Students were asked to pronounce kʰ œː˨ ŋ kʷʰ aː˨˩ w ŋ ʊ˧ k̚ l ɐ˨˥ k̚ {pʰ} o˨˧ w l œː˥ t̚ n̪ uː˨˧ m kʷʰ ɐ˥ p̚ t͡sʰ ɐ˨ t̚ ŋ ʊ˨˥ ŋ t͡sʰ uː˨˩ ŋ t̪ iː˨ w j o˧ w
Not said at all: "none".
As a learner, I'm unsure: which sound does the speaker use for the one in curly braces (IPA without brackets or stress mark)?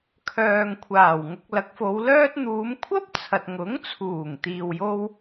f